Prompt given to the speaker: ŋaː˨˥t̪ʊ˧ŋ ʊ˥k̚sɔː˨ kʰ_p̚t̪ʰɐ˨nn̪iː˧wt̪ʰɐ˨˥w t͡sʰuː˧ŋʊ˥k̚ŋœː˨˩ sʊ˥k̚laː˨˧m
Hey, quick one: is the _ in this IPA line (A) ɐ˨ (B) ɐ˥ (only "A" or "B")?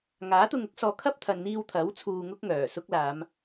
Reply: B